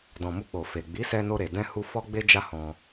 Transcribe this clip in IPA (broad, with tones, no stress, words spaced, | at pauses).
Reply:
dɔ̃˨mu˧k͡po˨ fe˨ɡ͡bi˨˦sɛ˧ no˧ɾe˨ dɛ̃˧hu˧ fɔ˦ɡ͡be˦d͡ʒa˦ hɔ̃˧